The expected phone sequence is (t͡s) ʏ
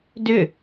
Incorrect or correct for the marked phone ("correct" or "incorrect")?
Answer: incorrect